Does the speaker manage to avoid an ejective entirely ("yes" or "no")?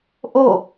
yes